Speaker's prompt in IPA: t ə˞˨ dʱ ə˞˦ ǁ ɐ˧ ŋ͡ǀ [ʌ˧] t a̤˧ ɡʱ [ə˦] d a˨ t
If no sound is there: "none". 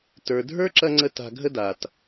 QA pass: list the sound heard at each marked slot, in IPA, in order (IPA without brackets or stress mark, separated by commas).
ə˧, ə˦